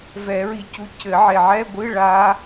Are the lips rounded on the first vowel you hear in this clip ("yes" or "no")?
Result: no